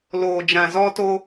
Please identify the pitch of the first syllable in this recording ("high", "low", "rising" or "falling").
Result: low